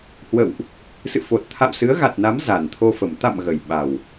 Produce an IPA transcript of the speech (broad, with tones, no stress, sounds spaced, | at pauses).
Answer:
h w ə̰˧˨ w ʔ | s ɨ̰˧˨ f o˨˩ t̚ t̪ʰ a̰˧˨ w s ɨ˨˦ ə̯ ɣ a˨˩ t̚ n a˨˦ m z a˨˩ n t̪ʰ o˧ f ə˨˩ m t̪ a̰˧˨ m ɣ ə˨˩ j ɓ a˨˩ w